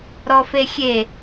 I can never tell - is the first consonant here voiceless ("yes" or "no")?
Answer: no